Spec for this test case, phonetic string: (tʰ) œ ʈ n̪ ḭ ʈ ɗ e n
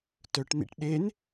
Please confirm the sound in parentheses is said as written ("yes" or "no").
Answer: no